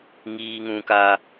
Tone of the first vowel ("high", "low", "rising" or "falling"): high